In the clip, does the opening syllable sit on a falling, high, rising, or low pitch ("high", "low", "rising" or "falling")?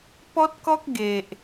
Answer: high